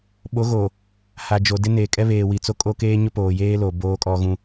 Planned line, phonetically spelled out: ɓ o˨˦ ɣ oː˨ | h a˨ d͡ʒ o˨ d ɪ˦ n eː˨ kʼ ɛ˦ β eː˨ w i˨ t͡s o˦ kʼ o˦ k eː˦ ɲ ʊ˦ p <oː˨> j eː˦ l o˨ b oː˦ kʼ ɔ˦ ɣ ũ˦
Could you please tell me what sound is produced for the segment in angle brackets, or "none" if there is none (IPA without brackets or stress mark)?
oː˨